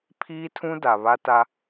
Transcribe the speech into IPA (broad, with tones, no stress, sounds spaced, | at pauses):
pʰ iː˦ tʰ ũ˦ d a˨ β a˦ t a˦